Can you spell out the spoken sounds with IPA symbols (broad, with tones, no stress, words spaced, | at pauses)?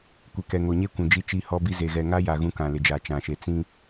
kʷɪ˨kɛ˨ŋo˨ ɲe˦kʷũ˨ d͡ʒi˦t͡ʃi˦hɔ˦bi˦ ze˨ɣɛ˨ŋa˦ja˨ ɣũ˦kã˨lɪ˨d͡ʒa˨ t͡ʃã˨ʃe˨ t͡sĩ˦